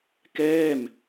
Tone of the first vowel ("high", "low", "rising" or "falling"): falling